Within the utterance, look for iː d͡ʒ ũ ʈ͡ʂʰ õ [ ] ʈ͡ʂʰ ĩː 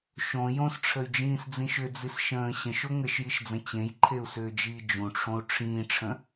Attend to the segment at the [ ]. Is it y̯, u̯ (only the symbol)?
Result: u̯